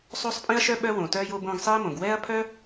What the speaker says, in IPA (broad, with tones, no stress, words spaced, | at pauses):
sˤo˧sˤpʼĩ˧ɐ̯ʃœ˧ ɓœ˧wõ˩ tœː˧jo˧bõː˧ɡ sˤiː˧mõ˩ɡ wɛː˥ɐ̯pʰœ˥